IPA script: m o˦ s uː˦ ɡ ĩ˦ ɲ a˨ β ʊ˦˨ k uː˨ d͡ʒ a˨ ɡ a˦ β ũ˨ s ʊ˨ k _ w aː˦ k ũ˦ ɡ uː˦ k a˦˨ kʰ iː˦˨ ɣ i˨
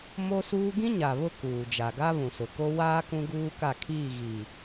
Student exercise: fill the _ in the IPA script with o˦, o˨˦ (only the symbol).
o˦